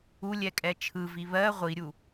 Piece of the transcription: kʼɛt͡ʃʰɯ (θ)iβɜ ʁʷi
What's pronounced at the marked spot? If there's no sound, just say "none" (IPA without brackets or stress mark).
v